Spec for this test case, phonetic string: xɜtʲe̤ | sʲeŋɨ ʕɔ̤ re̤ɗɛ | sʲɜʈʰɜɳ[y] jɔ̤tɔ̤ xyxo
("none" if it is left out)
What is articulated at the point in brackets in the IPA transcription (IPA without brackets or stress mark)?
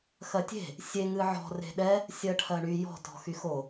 y